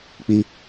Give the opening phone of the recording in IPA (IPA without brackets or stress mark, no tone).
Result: k͡p